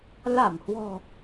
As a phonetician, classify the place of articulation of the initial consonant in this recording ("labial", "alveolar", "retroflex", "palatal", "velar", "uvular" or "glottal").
alveolar